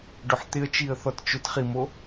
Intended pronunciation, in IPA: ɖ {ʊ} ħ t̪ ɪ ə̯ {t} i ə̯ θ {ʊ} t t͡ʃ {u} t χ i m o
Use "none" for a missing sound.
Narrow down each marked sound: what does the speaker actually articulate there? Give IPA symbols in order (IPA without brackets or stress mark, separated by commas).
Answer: ʊ, t͡ʃ, ɔ, ʊ